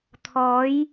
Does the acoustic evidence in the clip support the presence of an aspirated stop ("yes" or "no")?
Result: yes